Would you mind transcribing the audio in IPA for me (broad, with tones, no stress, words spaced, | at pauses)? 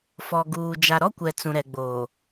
fɔ˨ɡuː˨ d͡ʒa˨ɾɔ˦kʷɛ˨ t͡sũ˨ɾɛ˨ɡ͡boː˨